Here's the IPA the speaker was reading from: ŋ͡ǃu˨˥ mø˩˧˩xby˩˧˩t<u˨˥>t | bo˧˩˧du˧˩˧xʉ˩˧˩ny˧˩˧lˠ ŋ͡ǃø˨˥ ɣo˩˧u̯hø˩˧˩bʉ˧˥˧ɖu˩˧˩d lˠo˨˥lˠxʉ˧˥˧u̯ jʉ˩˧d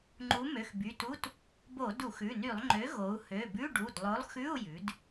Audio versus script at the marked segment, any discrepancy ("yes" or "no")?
yes